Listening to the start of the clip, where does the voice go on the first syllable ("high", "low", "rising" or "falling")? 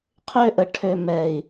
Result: high